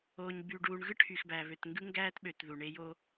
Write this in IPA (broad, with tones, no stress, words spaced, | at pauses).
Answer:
oː˨ɲby˨ɖuː˨ɳɣɯ˦ ʈʰy˨xbæ˨ βø˨tŋɡɯ˦ŋɡæː˦tɓø˨t ðu˨ɳe˦ jo˦